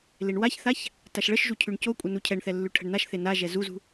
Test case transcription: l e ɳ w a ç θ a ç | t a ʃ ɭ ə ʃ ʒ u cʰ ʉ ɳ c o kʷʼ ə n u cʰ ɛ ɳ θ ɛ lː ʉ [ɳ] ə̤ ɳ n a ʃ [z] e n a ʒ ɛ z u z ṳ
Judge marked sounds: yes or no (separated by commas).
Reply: no, no